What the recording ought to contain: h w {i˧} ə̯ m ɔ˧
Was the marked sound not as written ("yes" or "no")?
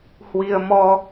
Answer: no